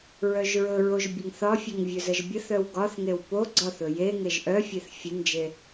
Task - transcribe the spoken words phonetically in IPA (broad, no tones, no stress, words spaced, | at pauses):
ɹœʒɹɵɹoʒ bʲəŋθɒfʲeŋ vʲɵzəʒbʲəθœw ɡɒθŋew po ɡ͡ǀɒθɵ je ŋeʒʔœfʲeθ fʲənd͡ʒe